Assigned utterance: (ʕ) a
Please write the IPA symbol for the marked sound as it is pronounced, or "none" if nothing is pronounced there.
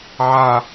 ʕ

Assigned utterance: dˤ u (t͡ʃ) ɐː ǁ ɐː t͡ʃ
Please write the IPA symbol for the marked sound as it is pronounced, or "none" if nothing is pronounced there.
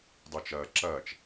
t͡ʃ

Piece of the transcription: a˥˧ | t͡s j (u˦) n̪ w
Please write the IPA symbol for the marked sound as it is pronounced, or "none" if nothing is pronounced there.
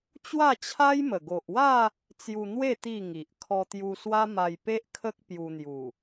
u˧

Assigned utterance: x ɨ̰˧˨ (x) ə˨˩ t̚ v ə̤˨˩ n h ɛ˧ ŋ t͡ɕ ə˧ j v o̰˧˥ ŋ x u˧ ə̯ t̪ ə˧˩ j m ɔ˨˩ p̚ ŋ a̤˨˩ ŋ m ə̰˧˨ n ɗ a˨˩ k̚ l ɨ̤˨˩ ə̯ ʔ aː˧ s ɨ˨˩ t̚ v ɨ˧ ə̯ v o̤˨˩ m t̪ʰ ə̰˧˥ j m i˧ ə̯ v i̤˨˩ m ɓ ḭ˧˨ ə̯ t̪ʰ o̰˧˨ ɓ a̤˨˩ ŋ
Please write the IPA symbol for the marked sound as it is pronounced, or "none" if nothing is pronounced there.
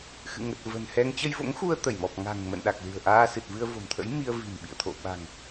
ŋ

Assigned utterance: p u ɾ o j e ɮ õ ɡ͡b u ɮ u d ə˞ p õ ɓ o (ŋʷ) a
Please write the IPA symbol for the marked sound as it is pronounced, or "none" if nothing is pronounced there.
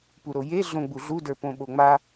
ŋ͡m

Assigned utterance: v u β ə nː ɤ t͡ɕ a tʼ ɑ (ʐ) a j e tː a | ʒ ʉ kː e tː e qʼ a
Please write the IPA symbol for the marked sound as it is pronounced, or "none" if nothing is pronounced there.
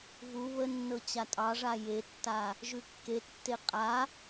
ʐ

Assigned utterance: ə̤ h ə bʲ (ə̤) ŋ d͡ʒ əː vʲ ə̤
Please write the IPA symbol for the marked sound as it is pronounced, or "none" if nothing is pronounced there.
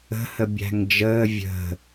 æ̤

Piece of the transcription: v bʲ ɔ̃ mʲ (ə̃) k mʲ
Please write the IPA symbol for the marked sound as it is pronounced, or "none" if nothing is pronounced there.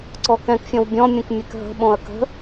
ə̃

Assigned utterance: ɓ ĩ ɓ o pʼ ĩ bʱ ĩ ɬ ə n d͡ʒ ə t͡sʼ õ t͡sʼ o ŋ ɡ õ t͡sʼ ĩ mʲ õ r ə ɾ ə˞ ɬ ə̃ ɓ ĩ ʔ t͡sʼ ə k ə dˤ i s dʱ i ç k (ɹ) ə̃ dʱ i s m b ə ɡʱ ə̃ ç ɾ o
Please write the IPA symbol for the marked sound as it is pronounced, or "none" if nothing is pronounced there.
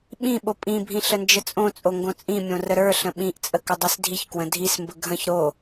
w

